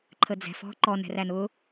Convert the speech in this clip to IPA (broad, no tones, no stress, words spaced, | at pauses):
ǃʰəd͡zɛ̤f ɔ̤ ǃɔn ɛ̤rænʊː